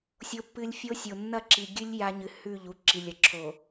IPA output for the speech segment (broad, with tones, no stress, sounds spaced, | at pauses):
sʲ o˦ pː ɨ˦ lʲ fʲ o˦ sʲ o˨ nː ɐ˦˨ ǁ i˨ ɡʲ ɨ˦ lʲ j a˦ ɲ ɨ˨ h ʉ˦˨ ʎ u˦ ǁ i˨ lʲ ɐ˨ ǁʰ o˨